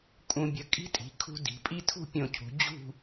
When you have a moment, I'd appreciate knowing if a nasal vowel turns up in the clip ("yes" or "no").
yes